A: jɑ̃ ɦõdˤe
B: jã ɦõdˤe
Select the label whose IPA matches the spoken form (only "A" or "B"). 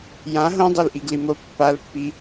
B